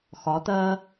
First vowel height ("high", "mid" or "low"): low